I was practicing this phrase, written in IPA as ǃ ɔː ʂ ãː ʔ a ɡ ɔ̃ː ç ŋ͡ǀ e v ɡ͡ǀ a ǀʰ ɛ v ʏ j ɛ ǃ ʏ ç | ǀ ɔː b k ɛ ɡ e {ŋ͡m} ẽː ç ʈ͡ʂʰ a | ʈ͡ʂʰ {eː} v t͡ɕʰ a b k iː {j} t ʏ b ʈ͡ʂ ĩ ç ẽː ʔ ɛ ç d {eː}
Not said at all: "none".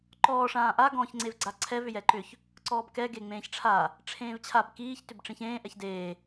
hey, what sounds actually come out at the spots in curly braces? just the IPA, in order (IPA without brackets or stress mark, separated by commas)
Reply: ŋ͡m, ẽː, ç, eː